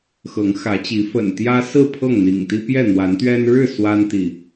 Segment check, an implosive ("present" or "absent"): absent